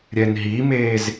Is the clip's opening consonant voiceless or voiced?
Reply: voiced